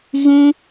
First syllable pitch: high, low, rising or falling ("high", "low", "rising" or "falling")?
high